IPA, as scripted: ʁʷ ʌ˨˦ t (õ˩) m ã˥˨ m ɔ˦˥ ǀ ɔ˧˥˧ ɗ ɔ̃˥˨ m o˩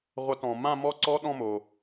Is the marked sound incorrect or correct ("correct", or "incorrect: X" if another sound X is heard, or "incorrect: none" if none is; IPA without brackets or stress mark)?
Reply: incorrect: ɔ̃˩